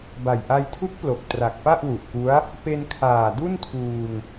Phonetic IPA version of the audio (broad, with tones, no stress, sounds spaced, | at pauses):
b a˨˩ j ʔ a˧ j tʰ u˦˥ k̚ p l o˨˩ k̚ t r a˨˩ k̚ p a˥˩ ʔ w u˨˩ ʔ k u˦˥ a̯ | p e˧ n kʰ aː˨˩ d u˥˩ n tʰ uː˧ ŋ